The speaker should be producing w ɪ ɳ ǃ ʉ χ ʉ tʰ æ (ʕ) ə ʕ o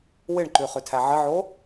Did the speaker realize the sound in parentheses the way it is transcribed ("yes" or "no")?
yes